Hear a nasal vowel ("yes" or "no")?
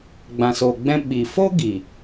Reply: yes